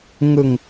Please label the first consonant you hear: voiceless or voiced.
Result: voiced